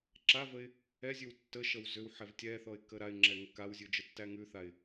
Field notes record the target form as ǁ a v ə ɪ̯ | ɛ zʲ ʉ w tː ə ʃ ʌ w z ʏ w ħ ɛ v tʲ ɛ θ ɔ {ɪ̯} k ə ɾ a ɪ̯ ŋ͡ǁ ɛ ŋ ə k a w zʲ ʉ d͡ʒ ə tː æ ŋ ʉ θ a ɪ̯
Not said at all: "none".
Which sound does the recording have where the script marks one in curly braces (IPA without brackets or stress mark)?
ɪ̯